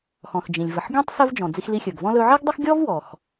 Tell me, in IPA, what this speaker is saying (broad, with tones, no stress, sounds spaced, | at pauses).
x ɔ̃˩ x d͡ʒ ĩ˩ lʲ v ə˩ ħ ɡʲ ɔ̃˥ tˤ s ɵ˧ v d͡ʒ ɔ̃˩ d͡z i˧ x l i˧ xʲ ɵ˩ ɡ v ɔ̃˥ l ɵ˧ ʕ i˥ ɡ dˤ ə˥ x ɡʲ ɔ˥ v w ɔ˩ x